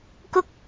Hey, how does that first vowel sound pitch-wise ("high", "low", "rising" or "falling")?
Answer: high